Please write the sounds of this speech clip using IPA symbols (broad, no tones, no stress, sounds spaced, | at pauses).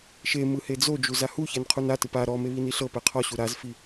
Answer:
ʃ e m ɯ h e d͡z o d͡ʒ u z a h u ç ɛ n qʰ u n a t ɯ p a ɾ ɔ m e β i n i ɬ ɤ p ɛ qʰ ɔ ɕ u ɾ a z f i